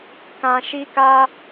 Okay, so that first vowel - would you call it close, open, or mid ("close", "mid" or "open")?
open